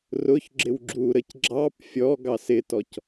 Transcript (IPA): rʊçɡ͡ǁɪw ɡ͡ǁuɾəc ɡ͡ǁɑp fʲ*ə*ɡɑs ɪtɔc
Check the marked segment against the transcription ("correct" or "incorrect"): incorrect